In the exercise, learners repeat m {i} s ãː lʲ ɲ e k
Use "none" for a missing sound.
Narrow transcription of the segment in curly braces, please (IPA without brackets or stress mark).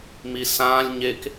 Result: i